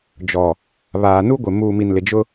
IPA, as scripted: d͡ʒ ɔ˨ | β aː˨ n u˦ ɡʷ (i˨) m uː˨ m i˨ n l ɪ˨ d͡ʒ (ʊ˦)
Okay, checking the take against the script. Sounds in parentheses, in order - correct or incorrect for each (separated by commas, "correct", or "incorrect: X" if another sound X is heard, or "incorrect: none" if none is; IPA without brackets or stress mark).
incorrect: ɪ˨, correct